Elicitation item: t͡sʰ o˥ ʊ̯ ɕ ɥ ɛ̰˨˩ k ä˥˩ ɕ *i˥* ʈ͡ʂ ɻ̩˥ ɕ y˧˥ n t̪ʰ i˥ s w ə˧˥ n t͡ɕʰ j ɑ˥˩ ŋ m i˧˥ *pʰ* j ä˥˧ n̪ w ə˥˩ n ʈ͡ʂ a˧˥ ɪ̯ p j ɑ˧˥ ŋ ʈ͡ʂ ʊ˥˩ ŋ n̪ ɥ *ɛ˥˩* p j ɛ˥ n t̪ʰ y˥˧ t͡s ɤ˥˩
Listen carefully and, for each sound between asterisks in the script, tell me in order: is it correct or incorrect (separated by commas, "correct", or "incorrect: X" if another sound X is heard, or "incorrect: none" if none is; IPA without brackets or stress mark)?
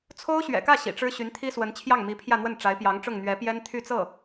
incorrect: ḭ˨˩, correct, incorrect: ɛ˧˥